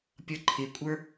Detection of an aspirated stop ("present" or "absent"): present